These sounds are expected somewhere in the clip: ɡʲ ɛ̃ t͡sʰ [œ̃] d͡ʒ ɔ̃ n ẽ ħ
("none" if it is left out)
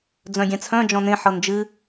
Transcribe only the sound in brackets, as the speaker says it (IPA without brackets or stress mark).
œ̃